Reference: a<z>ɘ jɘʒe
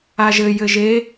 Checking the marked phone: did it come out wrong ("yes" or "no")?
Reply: yes